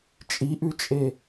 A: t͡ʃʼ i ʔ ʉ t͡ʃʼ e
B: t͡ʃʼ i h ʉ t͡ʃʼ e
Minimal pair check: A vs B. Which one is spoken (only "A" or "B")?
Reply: A